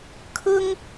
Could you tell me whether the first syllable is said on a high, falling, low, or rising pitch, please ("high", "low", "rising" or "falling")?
high